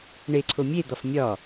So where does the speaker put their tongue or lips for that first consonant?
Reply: retroflex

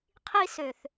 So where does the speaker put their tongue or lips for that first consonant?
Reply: uvula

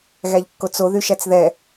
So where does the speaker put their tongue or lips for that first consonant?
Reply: velum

